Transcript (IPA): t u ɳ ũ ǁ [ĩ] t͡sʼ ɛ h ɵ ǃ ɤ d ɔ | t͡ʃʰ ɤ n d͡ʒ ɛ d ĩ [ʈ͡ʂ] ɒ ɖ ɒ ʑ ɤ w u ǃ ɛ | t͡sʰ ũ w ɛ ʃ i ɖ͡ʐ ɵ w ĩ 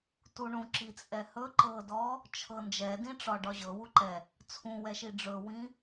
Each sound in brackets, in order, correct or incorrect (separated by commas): incorrect, correct